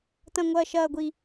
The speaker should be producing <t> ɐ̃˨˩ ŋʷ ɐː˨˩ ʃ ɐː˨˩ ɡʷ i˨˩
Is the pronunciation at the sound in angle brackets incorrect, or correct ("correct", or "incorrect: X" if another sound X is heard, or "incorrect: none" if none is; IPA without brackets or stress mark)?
correct